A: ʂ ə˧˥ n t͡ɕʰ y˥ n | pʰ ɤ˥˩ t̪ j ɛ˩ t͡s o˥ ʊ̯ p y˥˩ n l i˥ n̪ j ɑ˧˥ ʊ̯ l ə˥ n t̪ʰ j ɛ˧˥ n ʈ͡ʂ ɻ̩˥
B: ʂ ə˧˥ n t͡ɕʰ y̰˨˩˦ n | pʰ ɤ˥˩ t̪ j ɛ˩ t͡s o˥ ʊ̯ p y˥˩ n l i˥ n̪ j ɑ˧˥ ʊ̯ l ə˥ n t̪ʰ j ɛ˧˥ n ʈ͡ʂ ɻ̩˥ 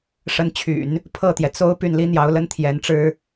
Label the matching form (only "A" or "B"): B